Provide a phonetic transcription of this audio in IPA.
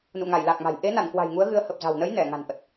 n ṵ˧˨ ŋ a˧˩ j l a˨˩ k̚ m a̤˨˩ j ʔ e˨˦ n a˧˩ n k w a̤˨˩ j ŋ u˨˦ ə̯ ɣ ɨ˨˦ ə̯ h ə˨˩ p̚ z a̤˨˩ w n ə˨˦ j n ɛ˧˩ ŋ a̤˨˩ n ʔ ə˨˩ t̚

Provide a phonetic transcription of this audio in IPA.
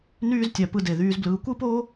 n yː˦ z tʲ æ˨ p ɯ˨ d e˩ ð yː˨ z b l ɯː˨ kʷ ɯ˦ p oː˦

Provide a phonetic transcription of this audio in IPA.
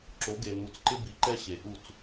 ǁ o˨˦ ɡ e˨ n̪ u˨ t͡s ǃ ɪ˦ b i˨˦ ǃ ɛ˦ ɕ e˨ ʔ u˦˨ t͡s

